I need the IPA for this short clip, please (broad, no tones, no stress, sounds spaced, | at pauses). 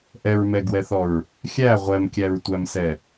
ʔ ɛ ɹ m ɛ ɡ w ɛ θ ɔ ɹ | xʲ æ ʁʷ ɛ m kʲ æ ɹ tʷ æ m s ɛ